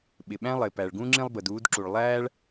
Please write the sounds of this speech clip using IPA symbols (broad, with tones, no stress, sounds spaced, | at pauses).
ɓ ɪ˩ ɓ æ̃˥ lˠ ɪː˩ p æ˩ ɭ ɡ ũ˥ ŋ͡ǁ ĩ˥ lˠ b ə˩ d uː˥ d ǁ u˩ ɭ lˠ æː˥ ɭ